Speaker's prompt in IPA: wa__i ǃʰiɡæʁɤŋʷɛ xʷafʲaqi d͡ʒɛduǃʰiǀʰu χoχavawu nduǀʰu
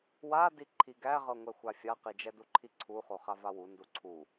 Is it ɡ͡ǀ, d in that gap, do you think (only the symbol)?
d